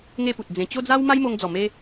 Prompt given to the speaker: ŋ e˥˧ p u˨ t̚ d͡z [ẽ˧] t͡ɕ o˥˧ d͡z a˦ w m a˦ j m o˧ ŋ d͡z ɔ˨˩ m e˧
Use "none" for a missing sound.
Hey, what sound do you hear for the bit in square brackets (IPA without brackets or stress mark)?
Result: ẽ˨˩